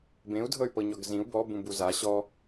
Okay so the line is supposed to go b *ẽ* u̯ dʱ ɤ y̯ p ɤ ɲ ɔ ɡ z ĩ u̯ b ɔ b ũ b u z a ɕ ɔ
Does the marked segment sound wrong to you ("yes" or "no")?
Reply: no